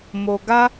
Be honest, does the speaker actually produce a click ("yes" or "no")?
no